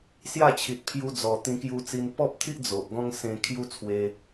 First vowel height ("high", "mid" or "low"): low